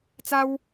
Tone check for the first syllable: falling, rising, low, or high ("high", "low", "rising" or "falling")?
high